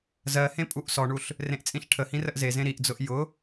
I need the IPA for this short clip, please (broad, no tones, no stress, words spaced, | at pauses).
zɜhẽ pʼuʔsɔɳuɬ | rẽʔt͡sʼĩɬʈʰəhĩ rəʔzezẽ ɾiʔd͡zʊʔ jʊ